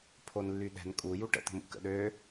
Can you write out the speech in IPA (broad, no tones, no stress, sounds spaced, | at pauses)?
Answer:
pʰ o n lː y ɗ ɛ̤ n kʼ u j u ʈ ə̰ t̪ ə̤ m ṵ k ə̰ ɗ øː